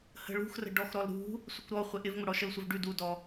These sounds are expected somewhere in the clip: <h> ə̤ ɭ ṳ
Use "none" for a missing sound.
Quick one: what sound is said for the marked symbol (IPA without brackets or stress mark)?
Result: h